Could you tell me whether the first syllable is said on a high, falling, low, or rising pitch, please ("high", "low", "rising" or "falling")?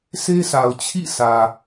high